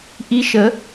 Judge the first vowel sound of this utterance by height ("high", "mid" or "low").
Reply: high